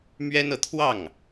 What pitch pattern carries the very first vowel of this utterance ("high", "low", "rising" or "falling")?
high